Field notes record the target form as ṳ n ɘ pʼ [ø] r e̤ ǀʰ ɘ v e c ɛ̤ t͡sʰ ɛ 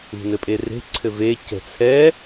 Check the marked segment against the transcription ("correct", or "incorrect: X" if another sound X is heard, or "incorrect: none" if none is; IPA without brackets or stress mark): incorrect: e